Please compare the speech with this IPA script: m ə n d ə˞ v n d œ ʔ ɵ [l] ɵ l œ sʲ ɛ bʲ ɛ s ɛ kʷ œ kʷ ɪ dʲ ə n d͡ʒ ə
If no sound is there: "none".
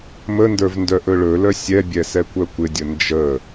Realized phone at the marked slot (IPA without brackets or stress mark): ɭ